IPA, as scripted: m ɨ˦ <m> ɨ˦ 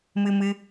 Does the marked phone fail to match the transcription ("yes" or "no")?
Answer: no